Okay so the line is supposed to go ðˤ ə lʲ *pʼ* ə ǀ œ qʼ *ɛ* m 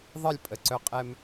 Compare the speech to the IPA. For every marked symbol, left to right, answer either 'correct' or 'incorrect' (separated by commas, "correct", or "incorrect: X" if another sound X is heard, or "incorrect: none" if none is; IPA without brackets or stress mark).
correct, correct